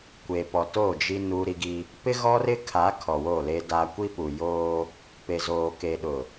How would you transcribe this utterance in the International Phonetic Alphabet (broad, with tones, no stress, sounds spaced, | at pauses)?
kʷ eː˨ p ɔ˨ t o˦˨ d͡ʒ i˦ n uː˦ ɾ i˦ ɡ i˦ | p ɪ˦ ɣ ɔ˦ r ɪ˦ kʰ a˨˦ kʰ ɔ˨ w o˦˨ l e˦ d aː˦ kʷ i˦ p u˨ j oː˦ | p e˨ z oː˨ k e˨ ɗ ʊ˨